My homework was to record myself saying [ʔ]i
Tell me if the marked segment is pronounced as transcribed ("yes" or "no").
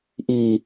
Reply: yes